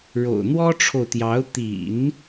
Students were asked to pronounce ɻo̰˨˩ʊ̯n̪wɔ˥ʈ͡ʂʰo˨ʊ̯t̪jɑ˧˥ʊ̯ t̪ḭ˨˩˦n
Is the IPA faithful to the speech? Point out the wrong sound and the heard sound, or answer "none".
none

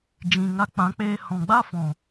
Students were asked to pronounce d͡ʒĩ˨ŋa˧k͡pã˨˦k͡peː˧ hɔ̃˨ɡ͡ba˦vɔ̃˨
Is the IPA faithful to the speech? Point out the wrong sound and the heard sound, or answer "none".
v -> f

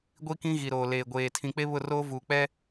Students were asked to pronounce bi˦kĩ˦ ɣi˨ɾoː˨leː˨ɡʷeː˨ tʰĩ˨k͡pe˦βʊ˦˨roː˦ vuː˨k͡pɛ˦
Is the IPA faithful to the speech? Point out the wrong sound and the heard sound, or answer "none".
b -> ɡʷ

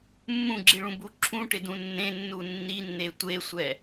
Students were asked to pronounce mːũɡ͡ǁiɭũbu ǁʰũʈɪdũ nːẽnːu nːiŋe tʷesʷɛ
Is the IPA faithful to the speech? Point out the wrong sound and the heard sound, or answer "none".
ŋ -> nː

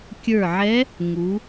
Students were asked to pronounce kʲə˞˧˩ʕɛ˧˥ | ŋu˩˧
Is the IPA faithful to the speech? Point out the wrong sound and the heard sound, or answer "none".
none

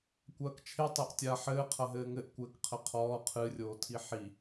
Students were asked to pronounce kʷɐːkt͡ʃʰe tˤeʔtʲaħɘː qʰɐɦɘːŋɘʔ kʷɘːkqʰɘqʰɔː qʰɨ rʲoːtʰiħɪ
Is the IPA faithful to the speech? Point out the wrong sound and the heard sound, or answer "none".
ɪ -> i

